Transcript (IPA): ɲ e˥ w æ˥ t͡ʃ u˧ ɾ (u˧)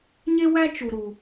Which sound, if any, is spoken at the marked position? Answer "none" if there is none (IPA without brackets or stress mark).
u˧